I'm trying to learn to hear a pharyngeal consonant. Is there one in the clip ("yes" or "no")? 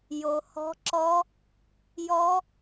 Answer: no